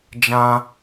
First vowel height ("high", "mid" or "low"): low